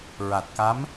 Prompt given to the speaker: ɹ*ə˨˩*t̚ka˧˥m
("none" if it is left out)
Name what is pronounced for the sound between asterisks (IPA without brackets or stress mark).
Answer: a˨˩